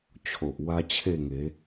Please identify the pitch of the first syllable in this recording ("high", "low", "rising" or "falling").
low